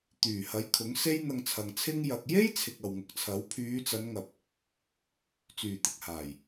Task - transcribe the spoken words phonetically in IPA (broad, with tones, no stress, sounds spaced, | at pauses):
t̪ yː˨˩ h ɐ˨˥ j kʰ ʊ˨˥ ŋ s e˥ j n̪ ɐ˧ ŋ t͡sʰ ɐ˨ ŋ t͡sʰ ɪ˥ ŋ j ɐ˨ k̚ j e˥ j t͡sʰ ɪ˨ k̚ ɐ˨ w ŋ ʊ˨ k̚ t͡sʰ ɐ˨˥ w pʰ yː˨˧ t͡s ɐ˨˧ n ŋ ɐ˨ p̚ | t͡s yː˨˩ t̪ ɪ˨ k̚ h aː˨˩ j